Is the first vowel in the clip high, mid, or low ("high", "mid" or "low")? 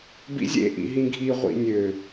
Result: high